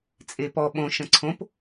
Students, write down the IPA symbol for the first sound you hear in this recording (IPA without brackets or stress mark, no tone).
t͡sʼ